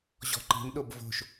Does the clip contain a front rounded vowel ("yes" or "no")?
no